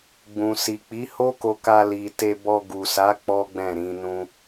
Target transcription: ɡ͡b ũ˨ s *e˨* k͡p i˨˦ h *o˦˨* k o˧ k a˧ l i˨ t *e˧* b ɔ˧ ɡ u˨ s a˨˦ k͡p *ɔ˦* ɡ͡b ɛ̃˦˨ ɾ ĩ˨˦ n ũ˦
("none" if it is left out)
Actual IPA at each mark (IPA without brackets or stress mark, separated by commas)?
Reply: i˨, o˦, e˧, ɔ˦